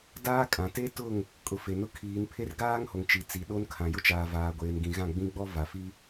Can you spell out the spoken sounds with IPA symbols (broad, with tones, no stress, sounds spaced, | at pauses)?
d aː˦ kʼ ã˨ t e˦ t ʊ˦˨ ŋ | kʼ ʊ˨ f e˨ n ʊ˦ kʰ iː˨˦ n pʰ e˦ r ɡ aː˦ ŋ h o˨ ŋ t͡ʃ i˨ t͡s i˨˦ ɗ o˦ n kʰ ã˨ j ʊ˦ t͡ʃ aː˨ v aː˨ ɡʷ eː˨ n ɡ ĩ˨ ɣ ã˦˨ ɡ͡b ĩ˦ ɡ͡b ɔ˦ v a˨ f i˦